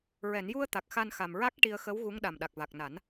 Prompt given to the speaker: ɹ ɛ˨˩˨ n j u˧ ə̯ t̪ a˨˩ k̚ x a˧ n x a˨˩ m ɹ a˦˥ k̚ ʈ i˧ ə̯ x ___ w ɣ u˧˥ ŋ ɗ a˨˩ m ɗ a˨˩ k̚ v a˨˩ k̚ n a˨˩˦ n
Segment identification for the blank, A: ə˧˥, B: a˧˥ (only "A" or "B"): A